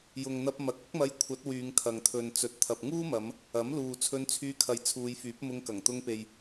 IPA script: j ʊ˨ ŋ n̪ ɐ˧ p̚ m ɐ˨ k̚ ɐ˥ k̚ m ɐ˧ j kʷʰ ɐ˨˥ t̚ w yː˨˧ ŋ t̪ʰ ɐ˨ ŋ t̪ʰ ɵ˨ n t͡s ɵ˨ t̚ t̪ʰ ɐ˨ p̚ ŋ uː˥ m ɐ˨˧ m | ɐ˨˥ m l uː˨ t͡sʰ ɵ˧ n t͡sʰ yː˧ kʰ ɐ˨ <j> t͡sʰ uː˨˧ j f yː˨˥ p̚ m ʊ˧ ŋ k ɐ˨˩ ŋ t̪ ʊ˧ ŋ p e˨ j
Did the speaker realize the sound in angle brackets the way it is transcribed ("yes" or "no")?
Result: yes